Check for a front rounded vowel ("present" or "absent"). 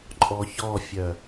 present